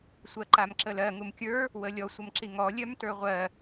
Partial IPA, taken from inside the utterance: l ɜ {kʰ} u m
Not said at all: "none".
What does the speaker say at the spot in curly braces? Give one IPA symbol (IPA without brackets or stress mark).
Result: ŋ